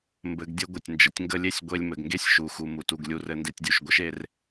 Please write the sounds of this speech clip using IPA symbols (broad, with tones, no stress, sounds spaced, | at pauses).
m b ɘ˨ ɡ dʲ ə˧ ɡʷ ə˨ tʲ n d͡ʒ ə˨ tʲ ŋ ɡ ə˦ lʲ e˦ sʲ ɡʷ e˧ lʲ m ɘ˨ ɡ ŋ ɡ e˦ sʲ ʃ u˨ x u˨ m u˨ t u˨ ɡ lʲ u˧ r ɘ˧ n d e˧ tʲ dʲ u˨ ʃ ɡʷ ɘ˦ ʃ e˦ r